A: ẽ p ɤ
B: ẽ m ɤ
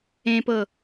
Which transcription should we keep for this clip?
A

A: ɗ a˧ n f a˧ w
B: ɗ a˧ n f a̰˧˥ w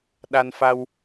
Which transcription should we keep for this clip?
A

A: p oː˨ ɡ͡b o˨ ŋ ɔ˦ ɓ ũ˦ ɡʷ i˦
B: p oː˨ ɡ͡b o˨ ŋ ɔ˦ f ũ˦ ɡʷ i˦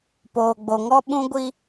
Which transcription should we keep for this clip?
A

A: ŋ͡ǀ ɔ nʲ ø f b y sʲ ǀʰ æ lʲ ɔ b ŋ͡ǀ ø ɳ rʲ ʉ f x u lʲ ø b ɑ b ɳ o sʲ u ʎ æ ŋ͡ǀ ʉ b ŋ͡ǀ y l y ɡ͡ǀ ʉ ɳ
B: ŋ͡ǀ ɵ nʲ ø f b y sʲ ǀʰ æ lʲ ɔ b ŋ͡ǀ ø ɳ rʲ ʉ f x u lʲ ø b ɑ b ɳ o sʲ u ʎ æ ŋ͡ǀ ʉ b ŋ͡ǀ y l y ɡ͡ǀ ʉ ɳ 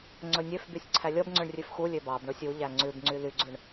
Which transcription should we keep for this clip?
B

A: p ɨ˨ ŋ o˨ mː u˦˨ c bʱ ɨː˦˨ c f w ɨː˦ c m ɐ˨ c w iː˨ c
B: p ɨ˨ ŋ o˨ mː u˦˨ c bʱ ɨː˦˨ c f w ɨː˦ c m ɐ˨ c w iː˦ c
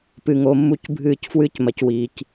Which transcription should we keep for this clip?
A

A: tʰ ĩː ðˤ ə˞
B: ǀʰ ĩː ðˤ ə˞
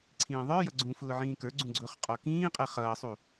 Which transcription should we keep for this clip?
B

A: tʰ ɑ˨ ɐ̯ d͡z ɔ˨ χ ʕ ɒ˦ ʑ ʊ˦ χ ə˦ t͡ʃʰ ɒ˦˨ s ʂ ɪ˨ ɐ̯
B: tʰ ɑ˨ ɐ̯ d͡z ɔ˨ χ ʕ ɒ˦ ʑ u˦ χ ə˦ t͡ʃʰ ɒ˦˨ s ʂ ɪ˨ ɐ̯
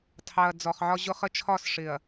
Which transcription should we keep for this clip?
A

